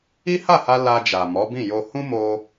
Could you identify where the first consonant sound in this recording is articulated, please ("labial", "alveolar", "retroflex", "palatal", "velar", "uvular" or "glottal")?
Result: glottal